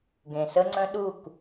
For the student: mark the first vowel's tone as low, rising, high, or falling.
low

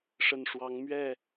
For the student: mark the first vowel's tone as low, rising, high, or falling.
low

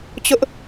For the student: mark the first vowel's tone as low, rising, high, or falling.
high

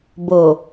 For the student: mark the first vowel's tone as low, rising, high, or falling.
low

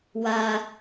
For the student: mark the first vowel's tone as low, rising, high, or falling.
high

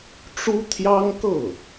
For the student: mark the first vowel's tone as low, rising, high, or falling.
high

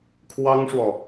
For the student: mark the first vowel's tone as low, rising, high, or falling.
high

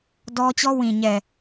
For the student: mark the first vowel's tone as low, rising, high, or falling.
high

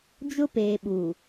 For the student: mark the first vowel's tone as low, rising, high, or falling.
high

